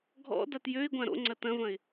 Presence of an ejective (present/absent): absent